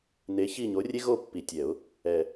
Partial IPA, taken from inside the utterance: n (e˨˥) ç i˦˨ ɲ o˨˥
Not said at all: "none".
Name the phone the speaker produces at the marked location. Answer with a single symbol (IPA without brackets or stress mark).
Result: e˨˥